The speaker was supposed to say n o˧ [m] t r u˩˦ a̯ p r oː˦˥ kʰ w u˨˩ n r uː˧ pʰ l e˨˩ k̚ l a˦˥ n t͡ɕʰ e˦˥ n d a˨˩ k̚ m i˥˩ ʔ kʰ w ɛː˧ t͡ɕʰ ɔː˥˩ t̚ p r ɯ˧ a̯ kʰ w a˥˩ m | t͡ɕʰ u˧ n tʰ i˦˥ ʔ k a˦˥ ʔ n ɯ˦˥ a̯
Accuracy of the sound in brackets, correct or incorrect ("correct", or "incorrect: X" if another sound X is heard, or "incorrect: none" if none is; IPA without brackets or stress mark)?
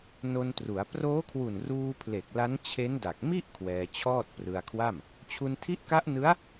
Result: incorrect: n